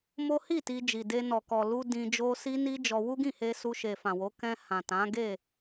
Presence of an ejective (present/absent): absent